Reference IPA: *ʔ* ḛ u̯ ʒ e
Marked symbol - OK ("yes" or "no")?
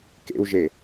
no